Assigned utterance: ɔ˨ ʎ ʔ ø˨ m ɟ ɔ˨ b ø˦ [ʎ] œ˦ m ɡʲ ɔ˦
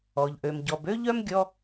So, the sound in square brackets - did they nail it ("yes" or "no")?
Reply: yes